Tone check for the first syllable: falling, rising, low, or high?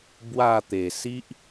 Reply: falling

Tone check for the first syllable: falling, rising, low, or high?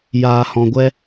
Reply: low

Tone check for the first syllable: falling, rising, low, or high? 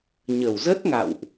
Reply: low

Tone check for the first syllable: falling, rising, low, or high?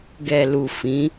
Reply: low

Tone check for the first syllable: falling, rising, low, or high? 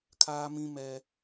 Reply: high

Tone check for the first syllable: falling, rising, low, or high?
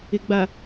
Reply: low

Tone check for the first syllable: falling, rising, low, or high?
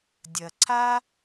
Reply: low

